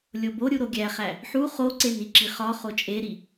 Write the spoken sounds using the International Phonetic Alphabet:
lʲ o b o ɾʲ u ɾ o ɡʲ æ χ æ | ħ u χ o ǀ e n i ǁ i χ ɒ χ o t͡ʃʼ e ɾ i

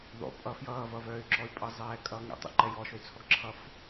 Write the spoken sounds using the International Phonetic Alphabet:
ðˤ o̰ pʼ ʌ f j ʌː v ʌ v œː y̯ ǁ ɔ y̯ pʼ ʌ zˤ ɛː kʼ ʌː ŋ ɛ̰ tˤ o̰ ǃ ɛ j ɔ ʃ o y̯ t͡sʰ ɔ ɡ ǁʰ ʌ f

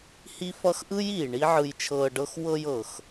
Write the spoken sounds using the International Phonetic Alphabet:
h i˦ f ʌ˦ x ʔ ɯ˦ j iː˨ ɳ i˦ ʕ ɯ˧ j t͡ʃʰ ɤː˧ ɖ ɤ˦ x w ɤ˧ j ɤ˨ x

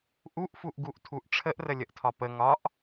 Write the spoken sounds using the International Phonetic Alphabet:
ʔ u ʔ f u ʔ ɡ u ʔ tʰ u ʔ ʈ͡ʂʰ ə ʔ r ə lʲ ə ʔ tʰ ɒ p ə ŋ ɒ ʔ

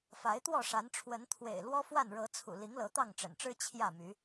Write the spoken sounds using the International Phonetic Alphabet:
f a˨˦ ɪ̯ t̪ w ɔ˥˨ ʂ a˨˦ n ʈ͡ʂʰ w ə˨˦ n t̪ʰ w ḛ˨˩ ɪ̯ l w ɔ˦ f w a˥˨ n ɻ ɤ˨˦ t͡sʰ ṵ˨˩ l i˨˦ ŋ l ɤ˨˦ t̪ ɑ˥˨ ŋ ʈ͡ʂ ə̰˨˩ n ʈ͡ʂ ɻ̩˦ t͡ɕʰ j ä˥˨ m y˨˦

